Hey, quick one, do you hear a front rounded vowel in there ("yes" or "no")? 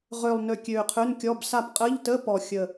yes